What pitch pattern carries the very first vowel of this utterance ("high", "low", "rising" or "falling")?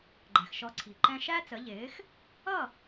low